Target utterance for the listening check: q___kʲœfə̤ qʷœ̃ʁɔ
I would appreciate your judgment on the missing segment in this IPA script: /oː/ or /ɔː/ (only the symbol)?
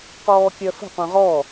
ɔː